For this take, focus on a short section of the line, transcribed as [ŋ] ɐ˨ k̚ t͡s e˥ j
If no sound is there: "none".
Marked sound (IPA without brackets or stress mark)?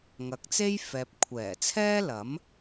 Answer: ŋ